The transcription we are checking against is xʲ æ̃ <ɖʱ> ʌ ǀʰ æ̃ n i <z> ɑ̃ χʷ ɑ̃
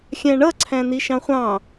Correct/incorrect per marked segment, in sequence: incorrect: ɳ, incorrect: ʃ

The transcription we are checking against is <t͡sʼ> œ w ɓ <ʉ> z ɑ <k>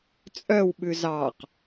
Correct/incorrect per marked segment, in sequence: correct, correct, incorrect: q

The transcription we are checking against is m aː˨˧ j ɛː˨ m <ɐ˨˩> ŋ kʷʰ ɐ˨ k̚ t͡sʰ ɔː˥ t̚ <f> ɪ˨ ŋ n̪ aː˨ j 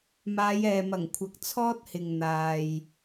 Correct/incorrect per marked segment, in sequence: correct, incorrect: h

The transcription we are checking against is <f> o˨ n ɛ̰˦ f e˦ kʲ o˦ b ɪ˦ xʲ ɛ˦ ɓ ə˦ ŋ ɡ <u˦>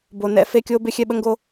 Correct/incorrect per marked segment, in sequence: incorrect: b, incorrect: o˦

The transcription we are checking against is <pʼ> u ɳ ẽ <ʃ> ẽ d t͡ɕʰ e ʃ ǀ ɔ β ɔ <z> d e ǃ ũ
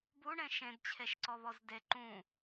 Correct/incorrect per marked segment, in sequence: incorrect: b, correct, correct

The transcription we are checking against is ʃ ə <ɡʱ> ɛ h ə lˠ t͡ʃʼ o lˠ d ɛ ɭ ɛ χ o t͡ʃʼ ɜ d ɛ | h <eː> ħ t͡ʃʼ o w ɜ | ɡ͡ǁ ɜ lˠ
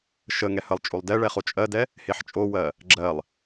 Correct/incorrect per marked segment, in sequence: incorrect: ŋ, incorrect: e

